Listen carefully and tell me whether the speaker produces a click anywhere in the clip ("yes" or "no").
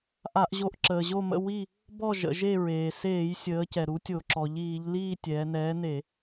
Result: yes